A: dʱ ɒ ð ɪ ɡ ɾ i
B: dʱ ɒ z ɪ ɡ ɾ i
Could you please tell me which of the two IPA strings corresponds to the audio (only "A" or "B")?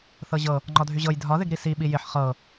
A